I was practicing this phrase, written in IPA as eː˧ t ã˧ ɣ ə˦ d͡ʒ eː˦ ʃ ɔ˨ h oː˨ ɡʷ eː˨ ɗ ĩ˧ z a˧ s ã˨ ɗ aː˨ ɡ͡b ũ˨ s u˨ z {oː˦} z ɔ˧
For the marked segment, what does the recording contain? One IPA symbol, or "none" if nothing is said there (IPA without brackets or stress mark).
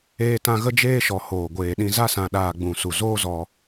oː˦